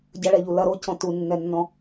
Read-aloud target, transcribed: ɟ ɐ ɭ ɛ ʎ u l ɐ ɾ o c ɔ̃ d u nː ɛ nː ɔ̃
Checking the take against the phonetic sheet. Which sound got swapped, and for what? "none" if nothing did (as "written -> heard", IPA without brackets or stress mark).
d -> t